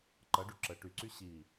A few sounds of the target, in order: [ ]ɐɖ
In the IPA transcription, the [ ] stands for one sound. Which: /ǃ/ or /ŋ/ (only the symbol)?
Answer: ǃ